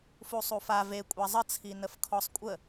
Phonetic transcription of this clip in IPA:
f u sˤ u f a v e kʷʼ a zˤ ə t͡sʰ i n ə f kʰ ɔ sˤ kʷʼ ə

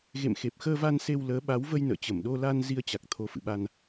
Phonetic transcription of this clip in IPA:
ɣ ḛ˧˨ m x e˨˩ p̚ x əː˧ v a˧ n s e˧ w l əː˨˦ ɓ a˨˦ w v ə˧ j n ə̰ː˧˨ t͡ɕ ə˧˩ m ɗ o˧ l a˧ n z i˧ ə̯ t͡ɕ a˨˩ k̚ t̪ʰ o˨˦ f ɨ̰˧˨ ɓ a˧ n

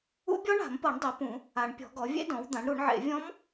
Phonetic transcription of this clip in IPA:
ṵ˦˥ bʲ ɔ˦˥ ɳ a̤˨˩˦ m p ɤ˨˩˦ ɳ dˤ e˩˥ p ũ˨˩˦ | a˨˩˦ ɳ pʲ ɔ̤˨˩˦ ɡ ɔ˩˥ vʲ ḛ˦˥ d ɔ̃˩˥ w d̪ ã˩˥ ɳ ɾ u˨˩˦ ɳ ʕ ḛ˨˩˦ vʲ ɔ̃˦˥ m

